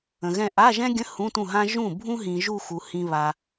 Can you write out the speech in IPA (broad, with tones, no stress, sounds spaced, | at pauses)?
ə̃˨ ɣ ɛ̃˥˧ ʔ a˧˥˧ ʒ ɛ̃˥ ɡʲ ə̃˧˥˧ h ũ˧˥˧ t ũ˥˩ ɦ ã˥ ʒ ũ˥˩ bʱ ũ˥ ɦ ĩ˨ ʒ u˥˧ x u˨ h ĩ˨ β a˨